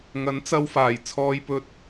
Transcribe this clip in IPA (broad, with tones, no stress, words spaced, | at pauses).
ŋɐ˨˥nt͡sɐ˧wfaː˨˩j t͡sʰɔː˧jpɵ˧t̚